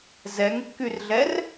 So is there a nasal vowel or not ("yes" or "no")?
no